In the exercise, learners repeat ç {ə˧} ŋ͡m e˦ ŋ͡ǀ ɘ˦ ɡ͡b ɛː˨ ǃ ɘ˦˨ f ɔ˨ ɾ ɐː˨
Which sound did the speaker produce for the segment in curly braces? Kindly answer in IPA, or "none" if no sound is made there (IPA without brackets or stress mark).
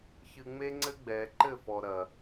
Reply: ɨ˧